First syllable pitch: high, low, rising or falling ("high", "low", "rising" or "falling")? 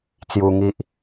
high